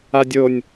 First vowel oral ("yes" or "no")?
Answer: yes